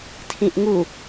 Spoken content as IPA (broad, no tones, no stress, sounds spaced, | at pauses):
tʰ ĩ ʔ ŋ u